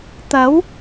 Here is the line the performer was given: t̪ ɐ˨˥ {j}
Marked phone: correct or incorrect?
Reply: incorrect